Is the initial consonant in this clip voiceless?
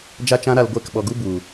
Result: no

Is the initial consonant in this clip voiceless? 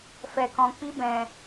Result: yes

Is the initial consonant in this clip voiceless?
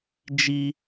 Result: no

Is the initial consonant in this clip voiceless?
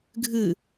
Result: no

